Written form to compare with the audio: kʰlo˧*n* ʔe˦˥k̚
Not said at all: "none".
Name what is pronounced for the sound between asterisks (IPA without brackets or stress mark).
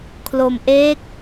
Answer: m